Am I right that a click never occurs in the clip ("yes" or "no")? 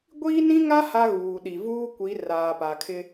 yes